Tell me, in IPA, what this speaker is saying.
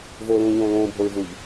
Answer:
voːlũːʎõːlõː bʱoɹvuʎ

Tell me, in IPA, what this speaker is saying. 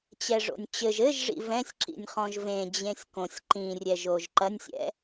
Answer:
t͡ɕɛʐo̰nʲt͡ɕɘʒ ɘʒʐḭ vɛ̃sʲ ǁḭnʲχɔ̃ʒvẽ d͡ʑẽsʲkõsʲ ǃĩrʲɛʒ oːʒǃɐnʲsʲɛ̰

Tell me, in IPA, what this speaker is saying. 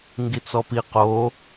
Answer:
ŋɡit͡sɔpi qo

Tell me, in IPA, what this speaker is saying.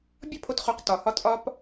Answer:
bʲɒ˦pʰo˧tχo˨˦q tɒ˨hɒ˧ tʼɒ˧p

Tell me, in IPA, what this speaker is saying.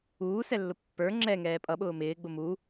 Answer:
uːsɛlːʊ pːə˞ ŋ͡ǁɛŋɛː pʼʌɓʊː mɪːɡ͡bʊ mu

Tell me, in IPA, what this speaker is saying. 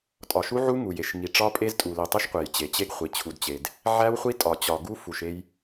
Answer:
tʼɒ˨ʃu˦ ʕu˦ ŋu˨je˨ʃ ŋi˨ ʈ͡ʂɒ˦pʼe˦z tʼu˨li˨tˤi˦ʃ qʷe˨jt͡ɕe˨t͡ɕe˦ɡχʷi˨ t͡ɕʰu˨dt͡ɕe˨d | ʕæ˦wχʷi˦tʼɒ˨ t͡ɕɒ˨ɡu˦ fu˨ʃe˦j

